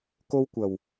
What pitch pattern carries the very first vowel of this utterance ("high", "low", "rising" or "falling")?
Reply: high